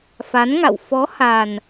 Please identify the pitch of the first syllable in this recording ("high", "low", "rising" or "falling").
rising